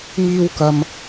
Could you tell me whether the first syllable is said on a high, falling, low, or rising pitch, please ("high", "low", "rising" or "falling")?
high